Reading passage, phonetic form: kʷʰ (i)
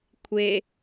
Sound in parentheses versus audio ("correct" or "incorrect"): incorrect